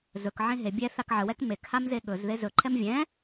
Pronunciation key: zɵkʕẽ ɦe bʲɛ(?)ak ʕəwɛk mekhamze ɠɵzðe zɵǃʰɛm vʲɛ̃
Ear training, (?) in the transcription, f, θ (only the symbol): θ